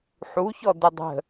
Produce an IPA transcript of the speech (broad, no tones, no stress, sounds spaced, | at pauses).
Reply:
ħ u ç ɔ d ə dˤ ə̤